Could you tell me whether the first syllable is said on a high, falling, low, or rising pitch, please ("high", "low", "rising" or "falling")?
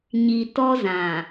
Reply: low